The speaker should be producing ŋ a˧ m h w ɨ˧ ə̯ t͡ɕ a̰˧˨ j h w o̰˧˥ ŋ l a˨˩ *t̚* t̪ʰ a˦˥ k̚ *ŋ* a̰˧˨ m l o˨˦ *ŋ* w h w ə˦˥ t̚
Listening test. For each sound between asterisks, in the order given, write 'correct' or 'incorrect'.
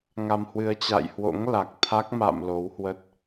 incorrect: k̚, incorrect: m, incorrect: none

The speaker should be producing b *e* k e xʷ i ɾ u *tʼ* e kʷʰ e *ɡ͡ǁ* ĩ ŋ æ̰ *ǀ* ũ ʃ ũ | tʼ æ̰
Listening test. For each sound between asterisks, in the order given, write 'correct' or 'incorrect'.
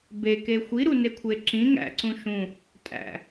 correct, incorrect: n, incorrect: ǁ, correct

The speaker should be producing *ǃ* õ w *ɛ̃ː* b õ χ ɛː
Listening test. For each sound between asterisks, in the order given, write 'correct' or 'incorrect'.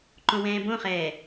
correct, correct

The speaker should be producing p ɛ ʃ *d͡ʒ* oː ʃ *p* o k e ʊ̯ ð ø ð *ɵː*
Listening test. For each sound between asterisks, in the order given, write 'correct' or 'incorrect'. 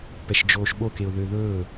correct, incorrect: ɓ, correct

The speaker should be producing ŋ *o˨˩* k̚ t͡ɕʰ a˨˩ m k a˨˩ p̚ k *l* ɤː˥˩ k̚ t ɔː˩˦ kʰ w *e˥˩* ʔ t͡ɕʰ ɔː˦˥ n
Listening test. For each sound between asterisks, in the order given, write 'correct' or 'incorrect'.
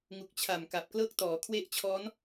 incorrect: u˨˩, correct, correct

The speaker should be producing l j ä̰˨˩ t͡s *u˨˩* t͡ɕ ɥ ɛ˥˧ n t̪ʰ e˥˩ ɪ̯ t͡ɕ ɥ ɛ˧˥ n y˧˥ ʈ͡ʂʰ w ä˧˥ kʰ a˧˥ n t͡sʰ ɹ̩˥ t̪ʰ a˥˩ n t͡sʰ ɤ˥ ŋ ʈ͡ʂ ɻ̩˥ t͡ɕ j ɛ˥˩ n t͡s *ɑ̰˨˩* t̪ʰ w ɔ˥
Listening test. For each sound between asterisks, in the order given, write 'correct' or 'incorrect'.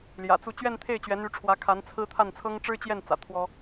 incorrect: u˥˧, incorrect: ä̰˨˩

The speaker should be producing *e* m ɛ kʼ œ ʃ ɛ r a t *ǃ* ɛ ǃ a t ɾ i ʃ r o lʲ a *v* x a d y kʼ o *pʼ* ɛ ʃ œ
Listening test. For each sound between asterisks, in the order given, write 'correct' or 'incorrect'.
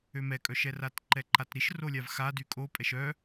incorrect: ø, correct, correct, correct

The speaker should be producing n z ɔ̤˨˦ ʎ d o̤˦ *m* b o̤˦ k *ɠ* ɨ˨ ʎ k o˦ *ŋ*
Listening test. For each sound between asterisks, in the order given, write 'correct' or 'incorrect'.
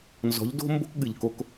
correct, correct, incorrect: k

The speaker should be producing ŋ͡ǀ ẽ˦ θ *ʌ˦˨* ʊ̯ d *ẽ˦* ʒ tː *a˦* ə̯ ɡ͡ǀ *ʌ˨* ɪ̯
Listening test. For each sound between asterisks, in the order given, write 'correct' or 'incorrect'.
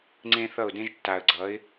correct, correct, incorrect: a˨, incorrect: ʌ˨˦

